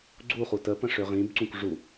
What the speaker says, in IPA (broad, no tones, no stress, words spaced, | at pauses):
ɡ͡ǀuχu təpə̃ʂø ʁĩbǀũk ʐu